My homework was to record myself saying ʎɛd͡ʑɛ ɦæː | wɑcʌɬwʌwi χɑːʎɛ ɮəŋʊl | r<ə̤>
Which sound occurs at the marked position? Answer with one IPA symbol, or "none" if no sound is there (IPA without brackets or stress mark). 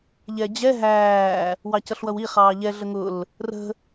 ə̤